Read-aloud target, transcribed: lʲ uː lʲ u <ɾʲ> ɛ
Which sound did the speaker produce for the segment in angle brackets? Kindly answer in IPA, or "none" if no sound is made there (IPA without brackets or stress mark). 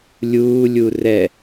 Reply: r